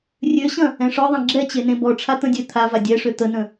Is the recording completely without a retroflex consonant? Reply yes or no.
no